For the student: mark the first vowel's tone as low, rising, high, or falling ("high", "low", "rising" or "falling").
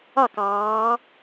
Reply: falling